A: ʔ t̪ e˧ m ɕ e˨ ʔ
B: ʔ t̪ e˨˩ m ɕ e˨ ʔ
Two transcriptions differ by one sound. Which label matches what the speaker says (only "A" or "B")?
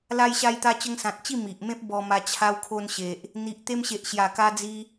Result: A